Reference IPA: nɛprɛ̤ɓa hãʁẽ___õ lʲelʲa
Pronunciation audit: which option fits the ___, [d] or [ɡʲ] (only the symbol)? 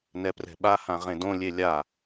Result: d